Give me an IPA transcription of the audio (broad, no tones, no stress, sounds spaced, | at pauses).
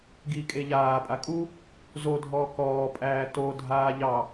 ɡ i kʼ e ʎ aː pʼ a kʼ u | z o dʱ ɔː k ɔː pʼ æː t o dʱ aː ʎ ɑ